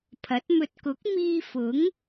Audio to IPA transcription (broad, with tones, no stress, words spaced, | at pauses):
pʰɐ˨˥t̚mɵ˧t̚ kʊ˨˥k̚miː˧fʊ˨˥ŋ